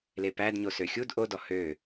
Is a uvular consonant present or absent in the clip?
absent